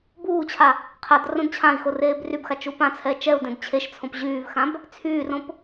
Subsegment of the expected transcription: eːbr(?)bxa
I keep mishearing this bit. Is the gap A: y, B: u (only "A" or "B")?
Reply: A